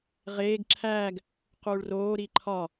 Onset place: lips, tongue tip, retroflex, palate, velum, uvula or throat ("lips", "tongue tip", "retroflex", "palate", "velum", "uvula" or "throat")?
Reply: uvula